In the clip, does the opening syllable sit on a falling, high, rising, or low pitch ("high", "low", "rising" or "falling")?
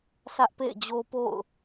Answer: high